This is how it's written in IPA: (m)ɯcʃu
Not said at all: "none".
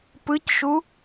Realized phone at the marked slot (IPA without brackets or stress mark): p